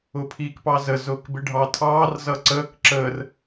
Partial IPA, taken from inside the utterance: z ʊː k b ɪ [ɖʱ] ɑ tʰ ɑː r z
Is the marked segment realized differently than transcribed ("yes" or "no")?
no